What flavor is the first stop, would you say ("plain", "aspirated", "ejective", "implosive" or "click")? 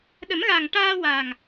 implosive